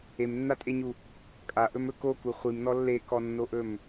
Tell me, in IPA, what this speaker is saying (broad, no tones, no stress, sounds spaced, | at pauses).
e m nː a tʼ e ɲ u | kʼ a ʔ ɵ m ɵ k o k u χʷ i m n ɔ lː e k ɔ nː o ʔ ɵ m